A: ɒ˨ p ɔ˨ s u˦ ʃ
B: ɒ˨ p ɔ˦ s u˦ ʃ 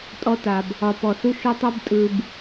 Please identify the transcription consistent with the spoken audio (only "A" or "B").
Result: A